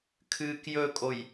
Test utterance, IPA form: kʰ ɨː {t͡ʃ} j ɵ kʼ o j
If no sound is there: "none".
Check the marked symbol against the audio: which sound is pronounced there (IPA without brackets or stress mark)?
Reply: k